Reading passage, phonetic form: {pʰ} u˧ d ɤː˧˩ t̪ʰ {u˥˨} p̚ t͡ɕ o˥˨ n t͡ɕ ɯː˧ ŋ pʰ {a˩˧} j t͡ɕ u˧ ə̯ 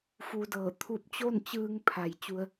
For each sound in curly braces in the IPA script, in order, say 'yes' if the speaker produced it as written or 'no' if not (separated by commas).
no, no, no